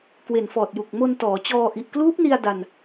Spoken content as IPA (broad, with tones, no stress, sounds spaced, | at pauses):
k w e˨˩ n f ɔː˨˩ t̚ j u˨˩ k̚ m o˧ n t ɔː˩˦ t͡ɕ ɔː˧ ʔ i˨˩ ʔ k l uː˦˥ p̚ n i˧ a̯ d a˧ n